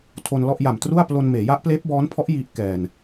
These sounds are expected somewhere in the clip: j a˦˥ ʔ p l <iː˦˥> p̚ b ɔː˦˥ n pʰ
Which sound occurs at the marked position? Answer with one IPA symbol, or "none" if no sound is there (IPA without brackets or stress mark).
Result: eː˦˥